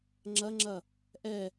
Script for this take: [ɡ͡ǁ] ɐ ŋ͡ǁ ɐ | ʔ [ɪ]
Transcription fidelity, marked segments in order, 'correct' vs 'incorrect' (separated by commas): incorrect, incorrect